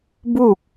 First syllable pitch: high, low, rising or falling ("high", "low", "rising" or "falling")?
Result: falling